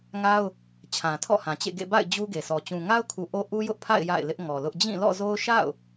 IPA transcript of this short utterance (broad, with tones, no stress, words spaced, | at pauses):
ŋa˦ʊ̯ | t͡ɕʰã˨tʰɔ̰˦˨hã˨t͡ɕḛ˦˨ ɡḛ˦˨ba̰˦˨ɪ̯ d͡ʑu˦ɡe˨sɔ˨ t͡ɕũ˨ŋa˦ʊ̯kʰu˨ ʔo˦ʔu˦ jʊ˦ʔpʰa̰˦˨ɪ̯ ja̰˦˨ɪ̯lɪ˦ʔŋɔ˨lʊ˦ʔ d͡ʑĩ˦˨lɔ̰˦˨zo˦ʊ̯ ʃa̰˦˨ʊ̯